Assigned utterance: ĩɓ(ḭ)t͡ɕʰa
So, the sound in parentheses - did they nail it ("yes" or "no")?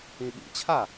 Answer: yes